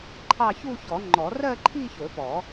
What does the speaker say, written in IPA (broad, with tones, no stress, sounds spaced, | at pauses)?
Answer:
ǃʰ ɑ˥˧ ç u˥˧ ç ɔ˨˩˦ ŋ͡ǃ ɔ˨˩˦ r ɜ˥˧ ǃʰ i˥˧ ç ɵ˨˩˦ p ɔ˨˩˦